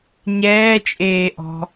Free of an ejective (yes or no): no